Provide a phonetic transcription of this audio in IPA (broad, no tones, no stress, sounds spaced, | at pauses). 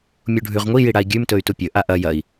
mʲ u ɖʱ ʉ ʁ ŋʷ i j i ɽ a i̯ ɡʲ ʉ m t ɵ y̯ t u pʲ ɵ ʔ a ʔ ɐ j ɐ i̯